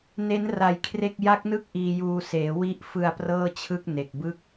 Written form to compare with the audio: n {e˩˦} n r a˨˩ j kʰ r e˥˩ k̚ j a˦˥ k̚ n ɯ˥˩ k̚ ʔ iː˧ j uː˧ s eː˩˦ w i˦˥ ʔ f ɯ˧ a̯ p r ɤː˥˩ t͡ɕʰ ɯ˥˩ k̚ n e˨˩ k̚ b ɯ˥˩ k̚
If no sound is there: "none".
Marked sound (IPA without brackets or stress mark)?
e˦˥